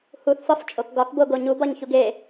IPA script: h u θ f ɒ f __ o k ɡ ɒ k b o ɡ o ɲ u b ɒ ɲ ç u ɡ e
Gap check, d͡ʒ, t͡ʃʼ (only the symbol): t͡ʃʼ